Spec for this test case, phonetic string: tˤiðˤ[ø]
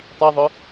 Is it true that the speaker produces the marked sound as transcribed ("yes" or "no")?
no